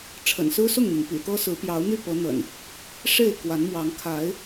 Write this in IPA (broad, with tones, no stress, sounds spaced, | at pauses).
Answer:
ʈ͡ʂʰ ə̰˨˩ n s ɹ̩˦ s ʊ˥˨ ŋ n̪ i˩ n p ḭ˨˩ t̪ ɤ˦ s ɹ̩˨˦ p j ɑ˨˦ ʊ̯ n̪ y˥˨ p ɤ˨˦ n̪ ə̰˨˩ n | ʂ e˥˨ ɪ̯ k w a˨˦ n m w ɑ˨˦ ŋ kʰ a˨˦ ɪ̯